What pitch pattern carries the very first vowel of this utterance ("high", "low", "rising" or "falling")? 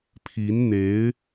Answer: rising